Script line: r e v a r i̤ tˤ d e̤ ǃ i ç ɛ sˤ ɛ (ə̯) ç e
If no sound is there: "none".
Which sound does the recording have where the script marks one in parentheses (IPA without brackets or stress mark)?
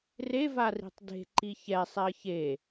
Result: ə̯